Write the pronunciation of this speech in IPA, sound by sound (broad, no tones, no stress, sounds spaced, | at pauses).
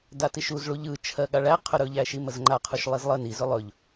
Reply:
d a t i ʃ u z ɭ u ʎ ɯ t͡ʃʰ ɜ ɠ a ɭ æ qʰ ɵ ɾ ɵ ʎ æ ʃ i m ə z ŋ͡ǃ a qʰ u ʃ lˠ i z lˠ ə n i z ɵ lˠ ɵ ʎ